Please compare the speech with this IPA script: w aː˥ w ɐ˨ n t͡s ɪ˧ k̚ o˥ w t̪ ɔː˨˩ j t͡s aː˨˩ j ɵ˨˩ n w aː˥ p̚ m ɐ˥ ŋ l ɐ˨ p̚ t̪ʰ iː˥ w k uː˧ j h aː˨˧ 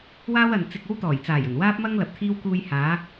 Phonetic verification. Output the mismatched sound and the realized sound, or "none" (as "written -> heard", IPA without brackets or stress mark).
none